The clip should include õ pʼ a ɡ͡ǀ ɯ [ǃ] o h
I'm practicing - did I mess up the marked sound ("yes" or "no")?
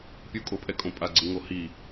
yes